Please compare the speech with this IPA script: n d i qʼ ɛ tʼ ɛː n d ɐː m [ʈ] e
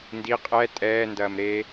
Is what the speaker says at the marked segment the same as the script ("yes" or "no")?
no